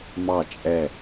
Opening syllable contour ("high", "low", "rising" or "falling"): falling